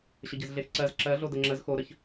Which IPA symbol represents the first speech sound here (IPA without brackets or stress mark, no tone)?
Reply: ɕ